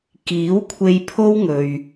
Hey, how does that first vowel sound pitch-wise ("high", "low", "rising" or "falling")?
rising